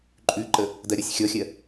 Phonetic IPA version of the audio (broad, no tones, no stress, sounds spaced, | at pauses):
ǃʼ ʉ ǃ ə | d ɜ ɾʲ ɔ sʲ xʲ ɔ xʲ ɜ